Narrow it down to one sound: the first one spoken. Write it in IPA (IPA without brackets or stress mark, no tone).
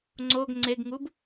ŋ͡ǀ